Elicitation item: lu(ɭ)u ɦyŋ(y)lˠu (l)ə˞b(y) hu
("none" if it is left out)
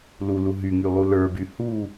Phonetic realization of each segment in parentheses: l, y, l, y

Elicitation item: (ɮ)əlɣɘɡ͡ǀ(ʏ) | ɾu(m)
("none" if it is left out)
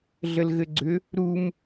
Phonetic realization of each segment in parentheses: ɮ, ʏ, m

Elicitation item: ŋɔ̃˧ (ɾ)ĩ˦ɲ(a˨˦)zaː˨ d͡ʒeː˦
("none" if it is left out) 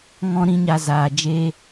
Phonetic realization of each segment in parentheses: ɾ, a˧

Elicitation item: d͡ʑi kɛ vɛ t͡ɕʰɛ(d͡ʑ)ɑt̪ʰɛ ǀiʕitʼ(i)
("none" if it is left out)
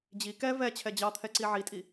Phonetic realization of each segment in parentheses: d͡ʑ, i

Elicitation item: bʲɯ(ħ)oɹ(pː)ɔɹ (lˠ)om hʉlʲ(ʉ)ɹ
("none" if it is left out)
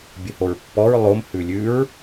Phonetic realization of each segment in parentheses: h, pː, lˠ, ʉ

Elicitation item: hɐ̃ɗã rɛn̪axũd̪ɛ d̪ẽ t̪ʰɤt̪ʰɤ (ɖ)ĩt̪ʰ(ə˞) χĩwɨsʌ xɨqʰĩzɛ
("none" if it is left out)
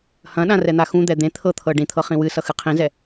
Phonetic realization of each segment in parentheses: ɖ, ɤ

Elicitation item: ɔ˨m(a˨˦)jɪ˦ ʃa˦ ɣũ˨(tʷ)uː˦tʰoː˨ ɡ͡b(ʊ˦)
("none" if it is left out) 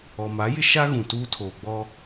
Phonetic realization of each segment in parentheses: a˨˦, t, ɔ˦

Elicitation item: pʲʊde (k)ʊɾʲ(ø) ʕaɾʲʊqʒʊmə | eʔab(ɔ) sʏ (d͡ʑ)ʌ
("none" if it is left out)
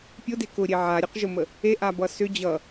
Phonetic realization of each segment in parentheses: k, e, ʌ, d͡ʑ

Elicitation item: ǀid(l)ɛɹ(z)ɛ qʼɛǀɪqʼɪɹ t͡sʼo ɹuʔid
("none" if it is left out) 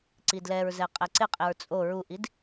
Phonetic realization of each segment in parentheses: l, z

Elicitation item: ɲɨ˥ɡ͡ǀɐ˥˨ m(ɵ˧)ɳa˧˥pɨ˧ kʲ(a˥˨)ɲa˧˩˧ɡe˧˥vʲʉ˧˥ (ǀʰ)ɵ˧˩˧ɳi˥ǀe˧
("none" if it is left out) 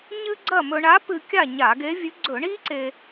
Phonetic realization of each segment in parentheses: ɵ˧, a˥˨, ɡ͡ǀ

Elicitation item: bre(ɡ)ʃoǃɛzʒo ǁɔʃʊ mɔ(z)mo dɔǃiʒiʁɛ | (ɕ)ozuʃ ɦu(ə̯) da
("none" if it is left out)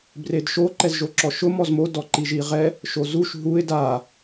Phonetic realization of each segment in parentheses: d, z, ʃ, ɪ̯

